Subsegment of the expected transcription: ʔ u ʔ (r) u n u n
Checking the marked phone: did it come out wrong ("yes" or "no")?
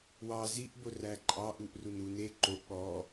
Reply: no